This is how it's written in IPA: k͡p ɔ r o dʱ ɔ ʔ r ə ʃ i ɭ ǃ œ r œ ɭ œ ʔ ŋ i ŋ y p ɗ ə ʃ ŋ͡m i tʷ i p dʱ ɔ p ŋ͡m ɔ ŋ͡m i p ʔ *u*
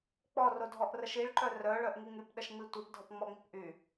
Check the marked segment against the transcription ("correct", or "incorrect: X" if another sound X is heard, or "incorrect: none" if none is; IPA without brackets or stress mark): incorrect: y